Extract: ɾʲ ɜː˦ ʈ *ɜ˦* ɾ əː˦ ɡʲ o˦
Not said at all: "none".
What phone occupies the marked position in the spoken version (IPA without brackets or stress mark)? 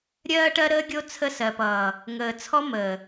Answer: ɜ˦